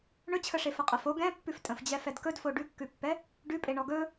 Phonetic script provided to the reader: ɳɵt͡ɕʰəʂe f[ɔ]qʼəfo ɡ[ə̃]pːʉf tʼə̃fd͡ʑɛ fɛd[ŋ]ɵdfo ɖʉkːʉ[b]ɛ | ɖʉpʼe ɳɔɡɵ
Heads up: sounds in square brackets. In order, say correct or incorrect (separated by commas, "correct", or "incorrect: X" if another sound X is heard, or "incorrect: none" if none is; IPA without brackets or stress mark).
incorrect: ə, incorrect: ɛ̃, incorrect: k, incorrect: pː